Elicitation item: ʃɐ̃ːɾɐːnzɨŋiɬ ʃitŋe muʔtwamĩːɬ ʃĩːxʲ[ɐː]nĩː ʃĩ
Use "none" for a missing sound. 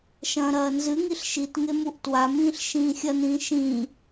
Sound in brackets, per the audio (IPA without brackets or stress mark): ɐ